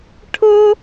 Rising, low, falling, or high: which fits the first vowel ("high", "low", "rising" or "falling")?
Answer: high